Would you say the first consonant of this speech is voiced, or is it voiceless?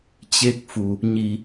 voiceless